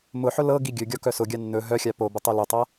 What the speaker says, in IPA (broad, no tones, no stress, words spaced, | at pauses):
mʊħʊ lɤ ɡiɡʲɵɡʲɔ kœsʊɡʲa nːɵ ɦœxʲa pobə tˤœlʊtˤa